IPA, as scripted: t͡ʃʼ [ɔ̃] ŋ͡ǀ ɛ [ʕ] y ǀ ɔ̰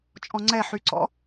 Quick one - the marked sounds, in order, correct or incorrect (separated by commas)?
correct, incorrect